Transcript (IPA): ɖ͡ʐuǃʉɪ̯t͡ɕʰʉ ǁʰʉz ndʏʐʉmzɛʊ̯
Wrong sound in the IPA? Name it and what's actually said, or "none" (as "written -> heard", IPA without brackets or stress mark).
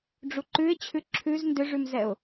none